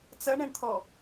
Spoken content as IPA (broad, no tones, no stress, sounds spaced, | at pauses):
t͡s ɐ ɳ ɛ̃ ɳ t̪ʰ ɔ